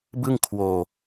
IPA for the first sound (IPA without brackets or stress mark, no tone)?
b